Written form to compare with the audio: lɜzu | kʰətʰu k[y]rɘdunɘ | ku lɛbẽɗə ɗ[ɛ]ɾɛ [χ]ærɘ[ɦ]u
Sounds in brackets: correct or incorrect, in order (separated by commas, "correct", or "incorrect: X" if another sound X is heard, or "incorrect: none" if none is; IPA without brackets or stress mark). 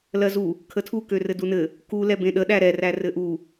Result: incorrect: ø, incorrect: æ, incorrect: r, incorrect: ʔ